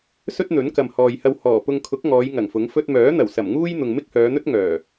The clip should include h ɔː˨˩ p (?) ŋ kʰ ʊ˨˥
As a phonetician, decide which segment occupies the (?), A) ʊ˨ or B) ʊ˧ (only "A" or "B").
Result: B